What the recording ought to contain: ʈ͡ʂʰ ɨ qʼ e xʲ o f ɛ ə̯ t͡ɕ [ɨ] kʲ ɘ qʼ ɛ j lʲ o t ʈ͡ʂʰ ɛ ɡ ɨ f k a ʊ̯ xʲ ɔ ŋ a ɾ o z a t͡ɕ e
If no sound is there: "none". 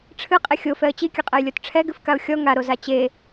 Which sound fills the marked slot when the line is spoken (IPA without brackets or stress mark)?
i